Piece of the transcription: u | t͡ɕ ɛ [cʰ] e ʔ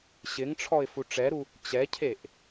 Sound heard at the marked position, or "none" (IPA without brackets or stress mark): cʰ